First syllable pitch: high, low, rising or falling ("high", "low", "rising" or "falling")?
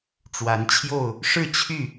rising